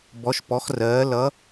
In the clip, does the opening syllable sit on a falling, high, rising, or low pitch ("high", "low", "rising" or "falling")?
rising